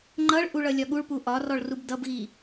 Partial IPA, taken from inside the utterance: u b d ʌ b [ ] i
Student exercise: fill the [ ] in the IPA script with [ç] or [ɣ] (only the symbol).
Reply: ɣ